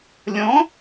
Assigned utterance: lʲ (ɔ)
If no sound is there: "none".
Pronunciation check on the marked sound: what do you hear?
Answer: ɔ̃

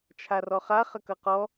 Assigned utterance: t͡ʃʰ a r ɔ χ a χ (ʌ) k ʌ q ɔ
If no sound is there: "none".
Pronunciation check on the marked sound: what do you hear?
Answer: ə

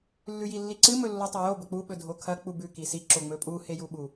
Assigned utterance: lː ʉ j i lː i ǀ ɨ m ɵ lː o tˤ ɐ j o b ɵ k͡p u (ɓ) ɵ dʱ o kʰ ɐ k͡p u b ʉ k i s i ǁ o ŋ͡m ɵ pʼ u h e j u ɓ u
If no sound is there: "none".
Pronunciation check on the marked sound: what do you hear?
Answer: ɓ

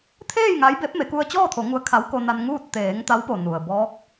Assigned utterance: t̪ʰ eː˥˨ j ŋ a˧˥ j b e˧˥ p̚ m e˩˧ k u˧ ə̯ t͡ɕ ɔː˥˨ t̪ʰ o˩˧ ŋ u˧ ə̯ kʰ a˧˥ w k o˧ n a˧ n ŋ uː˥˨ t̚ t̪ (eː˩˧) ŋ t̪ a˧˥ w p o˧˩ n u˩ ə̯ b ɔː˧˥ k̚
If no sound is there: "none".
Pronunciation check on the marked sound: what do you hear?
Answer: eː˩˧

